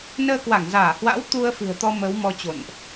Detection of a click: absent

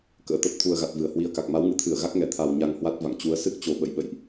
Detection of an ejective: absent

